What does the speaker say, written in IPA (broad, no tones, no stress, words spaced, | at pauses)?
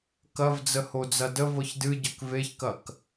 kɐvd͡zə hod͡zɐdə vɤçdɨɟɐk veçkɐk